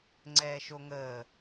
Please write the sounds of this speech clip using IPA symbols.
ŋ͡ǀɛːʃoŋəː

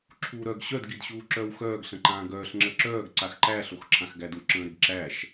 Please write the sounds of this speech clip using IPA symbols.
ǁʰuːɾœɡ ɕœd ɡidɕuːǁœːwxœːɡ ɬə̃ǃãːɡœːɬ ŋ͡ǁəǁœːɡ ǀaxǃæ ɬoxǁʰãxɡædu ǁə̃ːɾɪɡǁæʃ

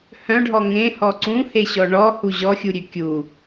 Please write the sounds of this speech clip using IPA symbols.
hœ̃ɖʱɔ ŋẽhɔ ǀũheɕɔ ɳɔhu ʑɔxʲuɾʲø kʲu

